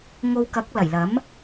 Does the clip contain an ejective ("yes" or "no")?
no